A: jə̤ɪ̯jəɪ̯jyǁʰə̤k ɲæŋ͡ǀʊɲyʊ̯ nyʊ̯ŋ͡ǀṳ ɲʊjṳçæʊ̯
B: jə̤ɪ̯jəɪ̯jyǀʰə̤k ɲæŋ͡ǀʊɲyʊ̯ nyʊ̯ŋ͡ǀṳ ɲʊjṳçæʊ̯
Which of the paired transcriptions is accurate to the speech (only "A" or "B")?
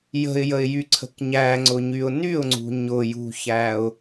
B